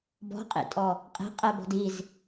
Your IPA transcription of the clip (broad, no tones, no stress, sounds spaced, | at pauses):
b ɔ̤ qʼ ḭ tʼ ɔ | qʼ i̤ qʼ ɛ b ɔ̤ d i z